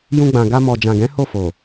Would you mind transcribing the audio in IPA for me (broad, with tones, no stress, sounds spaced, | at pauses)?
j ũ˧ ɡ͡b ã˨ ɡ a˧ m ɔ˨ d͡ʒ ã˨ ɡ ɛ̃˨˦ h o˦˨ f o˨